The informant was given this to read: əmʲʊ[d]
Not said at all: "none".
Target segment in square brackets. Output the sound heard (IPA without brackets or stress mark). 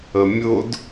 d